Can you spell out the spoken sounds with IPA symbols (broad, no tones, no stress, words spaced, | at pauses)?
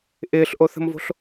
ʔɪːɬʔoθə̤mvo̤ɬ